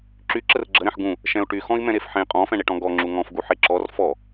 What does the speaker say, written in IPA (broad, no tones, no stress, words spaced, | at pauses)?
ǁy ǁərɡ͡ǁəɾɛ̃ħ ɡũ | ʃɛ̃u̯ʈy xɔ̃i̯mɛ̃ɾefħẽ qʼɔ̃fɛ̃ɳeʈɔ̃ ɡɔŋ͡ǁu ŋɔ̃fɡu ħeǁɔr fɔ